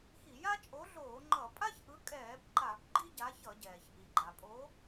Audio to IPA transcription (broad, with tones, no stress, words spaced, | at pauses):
xi˧˩˧ja˥ t͡ʃʼo˨˥ɮoː˧˩˧ ŋ͡ǃʌ˧˩˧ pʼa˥çʔɯ˨˥kʼɛː˧˩˧b ǃa˧˩˧b ɡ͡ǃi˥ɟa˨˥çʌ˧˩˧ɟɛː˩ç ʔi˩ɡ͡ǃa˩pʼo˨˥